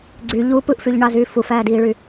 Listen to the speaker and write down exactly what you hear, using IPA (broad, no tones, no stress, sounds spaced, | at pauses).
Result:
ɡ͡ǀ y ʎ u p ɯ ʔ f y ʎ ɳ ɑ z y f u f æː d iː ɭ y